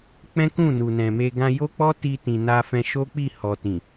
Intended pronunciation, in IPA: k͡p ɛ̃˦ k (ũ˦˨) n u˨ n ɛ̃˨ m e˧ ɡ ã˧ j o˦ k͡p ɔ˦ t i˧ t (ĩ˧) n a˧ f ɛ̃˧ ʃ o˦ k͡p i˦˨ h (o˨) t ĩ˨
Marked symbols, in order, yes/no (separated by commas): yes, no, no